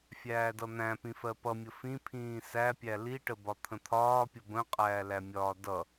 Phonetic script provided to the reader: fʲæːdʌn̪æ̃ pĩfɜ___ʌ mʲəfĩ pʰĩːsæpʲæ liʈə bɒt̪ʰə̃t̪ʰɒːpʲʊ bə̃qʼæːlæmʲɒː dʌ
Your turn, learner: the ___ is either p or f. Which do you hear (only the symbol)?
p